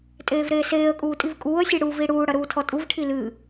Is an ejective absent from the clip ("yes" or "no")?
no